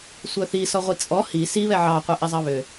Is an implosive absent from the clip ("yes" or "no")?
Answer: yes